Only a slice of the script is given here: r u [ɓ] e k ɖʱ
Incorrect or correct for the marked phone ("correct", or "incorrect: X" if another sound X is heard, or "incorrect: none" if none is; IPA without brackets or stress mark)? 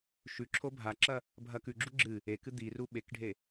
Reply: correct